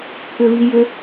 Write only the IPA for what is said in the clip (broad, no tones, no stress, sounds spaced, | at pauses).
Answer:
kʰ ʏ v i j ʏ